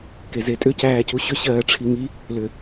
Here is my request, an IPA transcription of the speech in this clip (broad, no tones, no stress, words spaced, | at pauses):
kezetʼʏ cæːcuɕʏ ɕɜːʈ͡ʂʰiŋi | lʏ